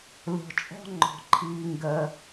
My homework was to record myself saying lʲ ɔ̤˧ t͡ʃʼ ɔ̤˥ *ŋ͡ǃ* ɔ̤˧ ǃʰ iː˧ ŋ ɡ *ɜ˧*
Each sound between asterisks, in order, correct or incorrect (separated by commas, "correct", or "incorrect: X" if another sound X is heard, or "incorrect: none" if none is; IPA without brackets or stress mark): correct, correct